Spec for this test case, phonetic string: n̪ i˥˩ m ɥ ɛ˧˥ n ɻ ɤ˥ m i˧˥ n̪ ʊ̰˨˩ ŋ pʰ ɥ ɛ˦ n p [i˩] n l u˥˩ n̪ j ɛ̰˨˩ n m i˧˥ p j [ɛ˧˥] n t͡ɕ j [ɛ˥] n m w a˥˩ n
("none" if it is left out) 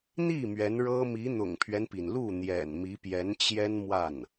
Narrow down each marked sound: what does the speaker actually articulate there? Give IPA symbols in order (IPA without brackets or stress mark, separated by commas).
i˩, ɛ˧˥, ɛ˥